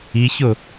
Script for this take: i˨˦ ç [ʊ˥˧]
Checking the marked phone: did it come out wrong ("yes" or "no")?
yes